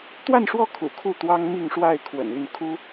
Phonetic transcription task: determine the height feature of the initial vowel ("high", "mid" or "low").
low